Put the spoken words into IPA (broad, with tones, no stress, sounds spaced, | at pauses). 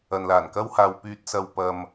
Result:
ɐ˨ n l aː˨˩ n k ɐ˥ w h aː˧ w p yː˧ t̚ s ɐ˧ w p ɐ˧ m